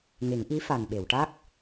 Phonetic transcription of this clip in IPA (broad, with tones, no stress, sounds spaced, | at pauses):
ŋ e˨˩˦ ŋ ʔ i˧˥ f a˨˩ n ɓ e˨˩˨ w ʈ a˦˥ k̚